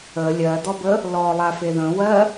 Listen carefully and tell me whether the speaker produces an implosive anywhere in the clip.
no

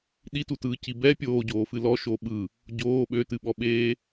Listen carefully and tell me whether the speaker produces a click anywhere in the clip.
no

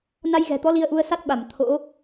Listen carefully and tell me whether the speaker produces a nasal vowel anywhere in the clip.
no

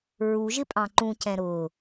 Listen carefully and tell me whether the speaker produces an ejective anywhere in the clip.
yes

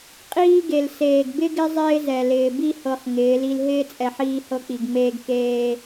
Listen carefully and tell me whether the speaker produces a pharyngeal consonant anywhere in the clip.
yes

